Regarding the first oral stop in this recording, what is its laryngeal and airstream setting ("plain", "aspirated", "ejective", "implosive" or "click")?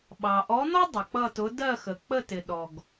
implosive